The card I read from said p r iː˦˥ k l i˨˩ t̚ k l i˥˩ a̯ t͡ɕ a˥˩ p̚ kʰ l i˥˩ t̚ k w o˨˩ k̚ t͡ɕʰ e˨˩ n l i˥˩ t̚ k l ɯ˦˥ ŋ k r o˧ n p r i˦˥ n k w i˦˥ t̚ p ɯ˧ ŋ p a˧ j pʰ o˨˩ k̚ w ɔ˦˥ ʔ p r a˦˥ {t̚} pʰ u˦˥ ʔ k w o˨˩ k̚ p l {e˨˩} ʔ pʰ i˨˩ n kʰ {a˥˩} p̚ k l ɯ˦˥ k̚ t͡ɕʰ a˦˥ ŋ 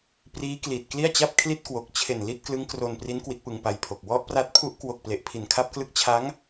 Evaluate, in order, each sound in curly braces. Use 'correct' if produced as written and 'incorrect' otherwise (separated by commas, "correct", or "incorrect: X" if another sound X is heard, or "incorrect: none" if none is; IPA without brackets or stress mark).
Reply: correct, correct, correct